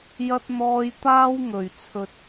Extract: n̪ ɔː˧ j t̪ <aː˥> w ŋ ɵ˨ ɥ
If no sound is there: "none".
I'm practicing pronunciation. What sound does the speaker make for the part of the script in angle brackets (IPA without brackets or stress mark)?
aː˥